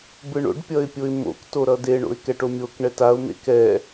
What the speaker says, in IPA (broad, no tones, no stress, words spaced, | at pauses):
bɯɳo̰ɖ pʲʌɪ̯pʲoɪ̯mo̰k toɾʌde ɳo̰ɪ̯kɛʈomʲok ɳɛtaʊ̯ mḛkɛ